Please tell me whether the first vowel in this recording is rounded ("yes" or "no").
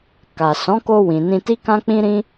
no